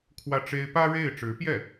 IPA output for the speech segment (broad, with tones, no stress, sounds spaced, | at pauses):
kʰ w ä˥˩ ʈ͡ʂ e˥ ɪ̯ p ä˥ ɻ e˥˩ ɪ̯ ʈ͡ʂ ɻ̩˧˥ p j ɛ˥˩